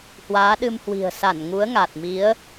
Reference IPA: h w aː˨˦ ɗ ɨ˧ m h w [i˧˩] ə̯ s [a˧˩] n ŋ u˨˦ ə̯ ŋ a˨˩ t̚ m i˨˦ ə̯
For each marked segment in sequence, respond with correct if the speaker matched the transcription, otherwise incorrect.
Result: incorrect: i̤˨˩, correct

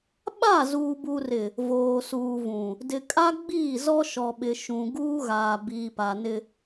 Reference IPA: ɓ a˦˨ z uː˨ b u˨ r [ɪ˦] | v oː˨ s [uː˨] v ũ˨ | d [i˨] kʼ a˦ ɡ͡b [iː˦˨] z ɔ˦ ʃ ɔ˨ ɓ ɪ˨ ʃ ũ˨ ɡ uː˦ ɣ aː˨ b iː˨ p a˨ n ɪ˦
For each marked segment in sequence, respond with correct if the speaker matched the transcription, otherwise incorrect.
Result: incorrect: ɪ˨, correct, incorrect: ɪ˨, correct

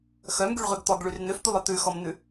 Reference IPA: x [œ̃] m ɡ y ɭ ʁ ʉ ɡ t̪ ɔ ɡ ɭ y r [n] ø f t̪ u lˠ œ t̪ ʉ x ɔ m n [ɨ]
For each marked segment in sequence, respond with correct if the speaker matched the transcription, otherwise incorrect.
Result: incorrect: œ, correct, incorrect: ʉ

